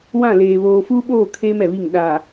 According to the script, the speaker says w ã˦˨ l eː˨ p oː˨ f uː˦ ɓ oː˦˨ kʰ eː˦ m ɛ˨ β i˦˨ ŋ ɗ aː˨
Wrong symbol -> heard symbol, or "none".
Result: p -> β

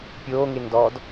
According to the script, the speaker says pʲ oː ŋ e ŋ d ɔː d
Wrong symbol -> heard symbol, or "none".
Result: none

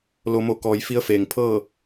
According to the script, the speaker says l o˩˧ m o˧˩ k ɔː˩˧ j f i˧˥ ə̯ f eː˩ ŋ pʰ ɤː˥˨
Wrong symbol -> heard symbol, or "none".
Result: none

